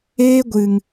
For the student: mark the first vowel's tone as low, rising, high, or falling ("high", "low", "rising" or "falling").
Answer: high